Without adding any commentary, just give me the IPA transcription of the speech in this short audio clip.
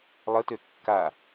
lˠ ə t ø kː a

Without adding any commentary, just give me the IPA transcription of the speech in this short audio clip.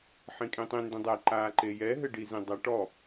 ħ ĩ kʼ ĩ tˤ ĩ n d ẽ dˤ ɛ ǃ aː ǃ e j ɛ ɦ ɘ ɖ i z ĩ dˤ æ ʈ ɔ

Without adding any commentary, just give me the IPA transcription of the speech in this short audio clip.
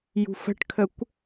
j ṳ f ə̤ ʈ kʰ ə kʷ

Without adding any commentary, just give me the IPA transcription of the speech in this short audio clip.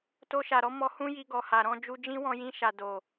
t o˧ ʃ a˨ ɾ ɔ˨˦ m ɔ˧ h ũ˦ j i˧ ɡ ɔ˨ h a˨ ɾ ɔ̃˧ d͡ʒ u˧ d͡ʒ ĩ˦ w ɔ̃˧ j ĩ˧ ʃ a˨ d o˨

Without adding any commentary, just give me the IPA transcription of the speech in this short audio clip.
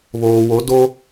β oː˨ w o˨˦ d o˦

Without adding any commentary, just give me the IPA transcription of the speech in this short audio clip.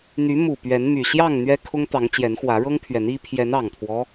n̪ y˨˦ m u˨˩ p ɥ ɛ˨˦ n m y˨˩ ɕ j ɑ˥˨ ŋ n̪ ɥ ɛ˦ kʰ ʊ˦ ŋ t̪ ɑ˨˦ ŋ t͡ɕ j ɛ˨˦ n x w ä˨˦ ɻ ɤ˦ ŋ pʰ ɥ ɛ˨˦ n i˦ pʰ j ɛ˨˦ n ɑ˨˩ ŋ t̪ʰ w ɔ˦

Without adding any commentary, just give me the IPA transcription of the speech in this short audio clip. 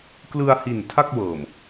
k l ɯ˧ a̯ h i˨˩ n tʰ a˥˩ k̚ w ɤː˨˩ m

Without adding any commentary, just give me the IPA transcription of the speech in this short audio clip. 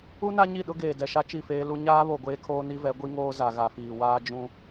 u˦ n a˦ ɲ i˦˨ ɗ ʊ˦ ɡ eː˨ d ɛ˨ ʃ a˦ t͡ʃ i˦˨ f eː˦ l u˦ ɲ aː˦ β o˨ ɡʷ eː˦ kʰ oː˦ n i˦ v ɛ˨˦ ɡʷ i˦ ŋ oː˦ z a˨ ɣ a˨ f iː˨ w aː˦ d͡ʒ ũ˦

